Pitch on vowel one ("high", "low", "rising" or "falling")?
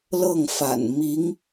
falling